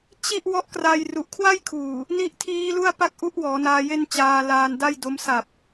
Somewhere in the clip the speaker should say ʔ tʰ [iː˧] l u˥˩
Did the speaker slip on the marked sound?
yes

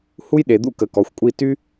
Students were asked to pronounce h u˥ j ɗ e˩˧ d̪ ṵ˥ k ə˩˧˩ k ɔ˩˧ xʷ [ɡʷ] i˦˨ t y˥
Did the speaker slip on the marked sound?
yes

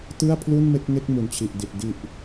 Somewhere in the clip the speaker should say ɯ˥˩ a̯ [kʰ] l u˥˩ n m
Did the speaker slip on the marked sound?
yes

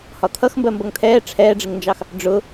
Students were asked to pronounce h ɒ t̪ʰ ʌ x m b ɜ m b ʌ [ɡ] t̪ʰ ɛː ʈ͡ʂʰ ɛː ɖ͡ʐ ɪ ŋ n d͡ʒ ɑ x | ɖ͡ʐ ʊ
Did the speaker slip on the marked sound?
yes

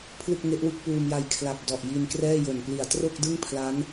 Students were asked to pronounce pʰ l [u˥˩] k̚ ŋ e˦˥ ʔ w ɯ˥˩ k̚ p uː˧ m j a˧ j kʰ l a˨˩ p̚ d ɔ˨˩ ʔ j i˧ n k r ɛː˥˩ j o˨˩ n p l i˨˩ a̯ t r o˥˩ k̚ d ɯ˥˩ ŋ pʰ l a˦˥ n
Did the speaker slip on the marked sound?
yes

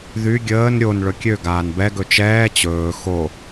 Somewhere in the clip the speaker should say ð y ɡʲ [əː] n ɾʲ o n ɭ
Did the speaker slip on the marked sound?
no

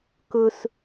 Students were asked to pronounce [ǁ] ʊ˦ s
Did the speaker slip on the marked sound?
yes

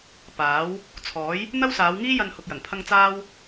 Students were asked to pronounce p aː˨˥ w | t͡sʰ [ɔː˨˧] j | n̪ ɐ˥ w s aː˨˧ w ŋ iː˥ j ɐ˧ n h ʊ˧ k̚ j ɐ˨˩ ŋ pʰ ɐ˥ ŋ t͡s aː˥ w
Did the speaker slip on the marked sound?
yes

